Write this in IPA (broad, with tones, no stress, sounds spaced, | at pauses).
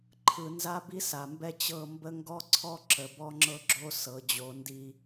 ǃʰ ɯ˨ n z a˦ b i˦ s a˨ m b ɛ˦ t͡ɕ ɤ˦˨ m b ə˦ ŋ ɡ ɔ˦ ǀʰ ɔ˦ ǁ ə˨ b ɔ˦ ŋ͡ǁ ɤ˦ ɡ͡ǁ o˦ s ɤ˨˦ d͡ʑ o˨˦ n d i˦